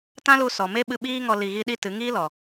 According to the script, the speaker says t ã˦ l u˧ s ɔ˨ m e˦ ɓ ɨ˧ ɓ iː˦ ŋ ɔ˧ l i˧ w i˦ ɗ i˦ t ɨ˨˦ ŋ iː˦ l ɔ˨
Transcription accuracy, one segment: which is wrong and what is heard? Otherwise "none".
w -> ɣ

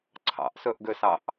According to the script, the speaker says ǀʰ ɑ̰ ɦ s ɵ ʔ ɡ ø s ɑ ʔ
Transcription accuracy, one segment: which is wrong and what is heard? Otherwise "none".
ɦ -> ʔ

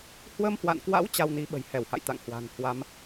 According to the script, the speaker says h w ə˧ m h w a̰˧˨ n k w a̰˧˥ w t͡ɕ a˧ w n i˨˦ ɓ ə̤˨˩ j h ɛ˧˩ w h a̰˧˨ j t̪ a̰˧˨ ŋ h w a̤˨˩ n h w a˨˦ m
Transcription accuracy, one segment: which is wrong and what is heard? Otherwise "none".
none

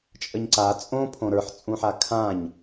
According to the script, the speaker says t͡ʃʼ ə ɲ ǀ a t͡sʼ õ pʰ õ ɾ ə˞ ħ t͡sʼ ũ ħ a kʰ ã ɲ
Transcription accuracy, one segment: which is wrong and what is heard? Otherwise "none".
none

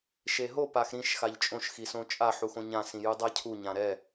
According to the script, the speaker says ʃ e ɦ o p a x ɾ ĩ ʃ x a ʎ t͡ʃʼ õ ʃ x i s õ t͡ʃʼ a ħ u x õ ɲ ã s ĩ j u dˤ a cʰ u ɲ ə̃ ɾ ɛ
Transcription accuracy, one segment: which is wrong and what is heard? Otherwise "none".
ə̃ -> ã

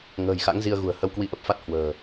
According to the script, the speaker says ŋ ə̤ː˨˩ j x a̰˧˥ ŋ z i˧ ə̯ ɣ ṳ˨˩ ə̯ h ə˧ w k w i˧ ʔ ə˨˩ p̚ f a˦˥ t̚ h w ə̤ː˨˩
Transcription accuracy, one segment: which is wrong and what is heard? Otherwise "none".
none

